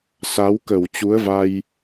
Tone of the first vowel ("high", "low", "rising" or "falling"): rising